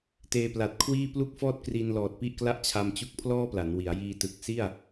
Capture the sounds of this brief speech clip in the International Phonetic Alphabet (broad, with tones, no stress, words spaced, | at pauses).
teː˧pla˨˩t̚kʰwiː˥˩ plu˥˩k̚fɔː˥˩t̚kri˧nlɔː˨˩t̚ pi˥˩ʔkla˥˩ʔt͡ɕʰa˧mt͡ɕu˦˥k̚ pʰlɔː˥˩pla˩˦n wi˩˦a̯jiː˧ tɯ˨˩k̚ si˥˩a̯